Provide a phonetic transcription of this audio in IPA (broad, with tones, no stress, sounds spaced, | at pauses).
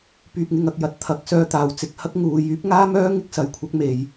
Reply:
p yː˨ p̚ ŋ ɪ˨ ŋ ɐ˨ k̚ j ɐ˨ t̚ t̪ʰ ɐ˨˥ k̚ s œː˧ t̪ aː˨ w t͡s ɪ˧ k̚ h ɐ˥ k̚ ŋ uː˨˧ j yː˨˥ p̚ ŋ aː˥ m œː˥ ŋ ɪ˥ k̚ s ɐ˨˧ j kʷʰ ɐ˥ k̚ m e˧ j